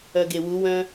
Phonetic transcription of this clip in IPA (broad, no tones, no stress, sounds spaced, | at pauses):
œ ɡ e w u w œ̃